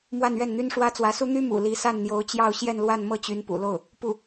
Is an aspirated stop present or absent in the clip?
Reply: absent